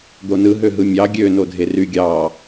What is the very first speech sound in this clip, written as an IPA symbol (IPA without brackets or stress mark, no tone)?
d̪